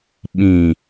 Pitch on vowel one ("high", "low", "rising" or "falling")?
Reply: low